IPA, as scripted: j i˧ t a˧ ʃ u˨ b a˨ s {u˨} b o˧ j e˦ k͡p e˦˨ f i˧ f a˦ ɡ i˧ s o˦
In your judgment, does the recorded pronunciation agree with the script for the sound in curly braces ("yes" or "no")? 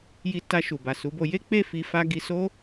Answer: no